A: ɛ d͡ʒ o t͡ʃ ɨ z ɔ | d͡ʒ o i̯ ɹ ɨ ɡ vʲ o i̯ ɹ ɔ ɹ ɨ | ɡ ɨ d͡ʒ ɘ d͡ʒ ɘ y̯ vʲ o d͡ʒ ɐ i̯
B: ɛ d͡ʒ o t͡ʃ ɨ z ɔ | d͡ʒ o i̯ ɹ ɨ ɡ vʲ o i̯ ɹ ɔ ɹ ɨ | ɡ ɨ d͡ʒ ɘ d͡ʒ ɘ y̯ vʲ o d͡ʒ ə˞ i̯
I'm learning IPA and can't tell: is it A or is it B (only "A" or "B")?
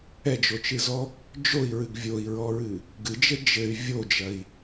A